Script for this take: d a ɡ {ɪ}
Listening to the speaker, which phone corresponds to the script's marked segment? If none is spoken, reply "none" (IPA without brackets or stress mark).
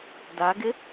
ɪ